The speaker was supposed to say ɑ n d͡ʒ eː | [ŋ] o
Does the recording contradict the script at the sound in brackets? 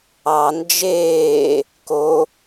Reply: yes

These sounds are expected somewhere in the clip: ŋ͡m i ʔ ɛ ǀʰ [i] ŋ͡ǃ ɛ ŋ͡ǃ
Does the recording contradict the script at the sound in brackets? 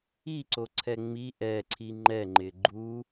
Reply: no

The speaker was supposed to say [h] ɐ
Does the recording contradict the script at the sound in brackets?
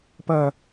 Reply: yes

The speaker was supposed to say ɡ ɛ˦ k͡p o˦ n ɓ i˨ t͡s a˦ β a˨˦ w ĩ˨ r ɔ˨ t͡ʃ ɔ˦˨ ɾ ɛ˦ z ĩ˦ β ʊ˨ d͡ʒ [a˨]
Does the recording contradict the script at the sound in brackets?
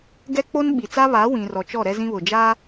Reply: yes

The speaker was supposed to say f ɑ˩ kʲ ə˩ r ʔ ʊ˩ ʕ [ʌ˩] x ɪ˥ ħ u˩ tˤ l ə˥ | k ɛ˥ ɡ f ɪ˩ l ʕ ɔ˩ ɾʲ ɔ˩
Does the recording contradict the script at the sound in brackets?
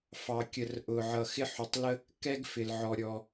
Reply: no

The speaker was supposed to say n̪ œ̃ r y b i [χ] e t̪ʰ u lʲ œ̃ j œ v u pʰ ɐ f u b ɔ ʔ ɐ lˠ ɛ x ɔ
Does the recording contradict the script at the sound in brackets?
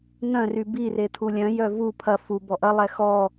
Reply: yes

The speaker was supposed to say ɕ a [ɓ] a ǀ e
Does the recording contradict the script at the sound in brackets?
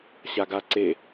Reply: yes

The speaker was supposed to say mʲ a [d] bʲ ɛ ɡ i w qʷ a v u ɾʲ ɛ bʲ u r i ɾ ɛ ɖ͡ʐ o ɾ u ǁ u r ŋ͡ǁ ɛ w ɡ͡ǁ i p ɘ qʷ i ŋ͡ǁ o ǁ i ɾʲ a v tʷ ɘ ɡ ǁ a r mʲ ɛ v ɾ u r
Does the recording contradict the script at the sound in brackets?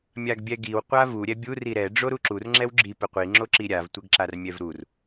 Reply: yes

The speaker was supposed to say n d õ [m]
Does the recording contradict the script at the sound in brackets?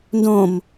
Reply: no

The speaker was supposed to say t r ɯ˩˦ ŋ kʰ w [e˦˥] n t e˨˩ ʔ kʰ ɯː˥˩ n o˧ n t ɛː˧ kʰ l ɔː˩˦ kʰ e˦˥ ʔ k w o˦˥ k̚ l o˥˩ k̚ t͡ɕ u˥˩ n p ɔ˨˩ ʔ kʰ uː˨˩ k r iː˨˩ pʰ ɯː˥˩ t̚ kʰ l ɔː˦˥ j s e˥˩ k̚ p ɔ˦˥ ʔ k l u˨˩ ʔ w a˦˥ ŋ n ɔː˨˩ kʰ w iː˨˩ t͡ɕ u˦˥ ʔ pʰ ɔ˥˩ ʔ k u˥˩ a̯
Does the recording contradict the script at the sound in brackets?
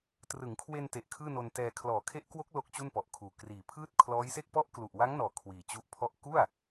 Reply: yes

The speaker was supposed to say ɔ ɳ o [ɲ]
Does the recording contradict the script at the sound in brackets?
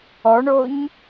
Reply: no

